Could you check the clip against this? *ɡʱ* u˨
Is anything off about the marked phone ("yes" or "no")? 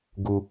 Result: yes